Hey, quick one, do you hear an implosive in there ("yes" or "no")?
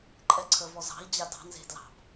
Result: no